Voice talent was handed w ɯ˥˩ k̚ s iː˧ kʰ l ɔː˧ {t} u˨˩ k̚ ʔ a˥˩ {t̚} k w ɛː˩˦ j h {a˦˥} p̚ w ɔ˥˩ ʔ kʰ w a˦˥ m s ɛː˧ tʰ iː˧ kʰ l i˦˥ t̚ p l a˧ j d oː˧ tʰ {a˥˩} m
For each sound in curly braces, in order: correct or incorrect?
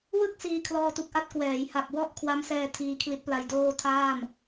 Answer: correct, correct, incorrect, incorrect

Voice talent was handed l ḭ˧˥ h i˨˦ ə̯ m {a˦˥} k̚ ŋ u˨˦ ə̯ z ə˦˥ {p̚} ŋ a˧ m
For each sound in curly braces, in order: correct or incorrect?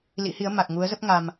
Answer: incorrect, correct

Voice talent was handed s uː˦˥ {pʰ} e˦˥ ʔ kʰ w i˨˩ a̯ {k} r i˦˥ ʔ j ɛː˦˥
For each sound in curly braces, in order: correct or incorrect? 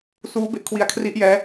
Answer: incorrect, incorrect

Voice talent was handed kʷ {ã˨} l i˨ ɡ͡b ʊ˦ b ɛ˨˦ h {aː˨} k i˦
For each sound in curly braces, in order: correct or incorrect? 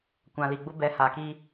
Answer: correct, correct

